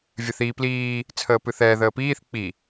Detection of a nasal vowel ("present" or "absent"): absent